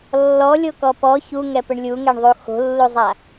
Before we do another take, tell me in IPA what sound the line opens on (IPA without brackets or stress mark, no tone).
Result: lː